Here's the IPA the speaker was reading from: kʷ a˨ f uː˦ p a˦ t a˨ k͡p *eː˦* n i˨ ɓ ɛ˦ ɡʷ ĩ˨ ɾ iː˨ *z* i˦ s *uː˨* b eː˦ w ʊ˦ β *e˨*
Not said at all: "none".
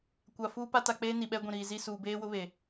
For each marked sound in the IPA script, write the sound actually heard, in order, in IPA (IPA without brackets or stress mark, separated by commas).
eː˦, z, uː˨, e˨